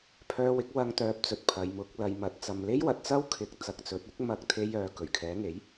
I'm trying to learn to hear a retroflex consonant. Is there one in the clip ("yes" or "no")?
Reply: no